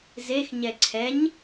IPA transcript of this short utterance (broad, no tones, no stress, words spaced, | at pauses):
zexɲɛ ǀʰɛɲ